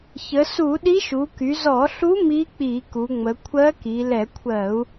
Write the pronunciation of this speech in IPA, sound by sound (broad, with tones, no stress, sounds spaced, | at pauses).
ç ə˩˧ s u˧˩˧ ɗ i˧˥ ʃ u˩˧ k y˩˧ z ɔ˧˩˧ ɬ u˧˥ m i˧˥ k͡p i˧˩˧ k u˩˧ ŋ͡m ə˩˧ kʷʰ ɜ˧˥ k i˩˧ l ɛ˧˩˧ kʷʰ ɜ˧˩˧ u̯